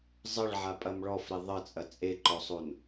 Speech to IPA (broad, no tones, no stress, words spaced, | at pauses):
zˤəɭʕapʼɐm ɭɔfɾe ðˤət͡sʼɐ t͡sʼeǃɔsˤon